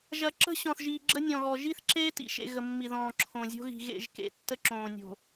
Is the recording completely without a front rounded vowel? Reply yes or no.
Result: yes